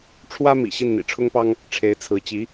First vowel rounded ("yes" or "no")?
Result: no